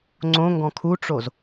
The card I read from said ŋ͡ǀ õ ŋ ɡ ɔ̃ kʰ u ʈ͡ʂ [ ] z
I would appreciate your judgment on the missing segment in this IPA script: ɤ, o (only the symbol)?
o